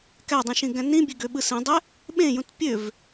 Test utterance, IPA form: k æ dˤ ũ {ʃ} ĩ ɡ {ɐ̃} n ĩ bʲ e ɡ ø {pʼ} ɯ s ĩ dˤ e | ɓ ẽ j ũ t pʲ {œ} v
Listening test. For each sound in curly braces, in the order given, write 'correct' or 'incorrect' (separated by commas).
correct, incorrect, incorrect, incorrect